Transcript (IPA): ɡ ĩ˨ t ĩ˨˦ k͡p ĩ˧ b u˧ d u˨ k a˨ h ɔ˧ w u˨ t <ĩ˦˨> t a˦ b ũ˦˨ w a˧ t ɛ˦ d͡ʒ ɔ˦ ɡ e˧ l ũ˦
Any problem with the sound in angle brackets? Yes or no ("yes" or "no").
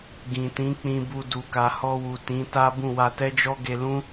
yes